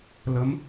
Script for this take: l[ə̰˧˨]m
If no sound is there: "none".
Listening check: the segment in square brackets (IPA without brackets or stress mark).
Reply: ə˨˦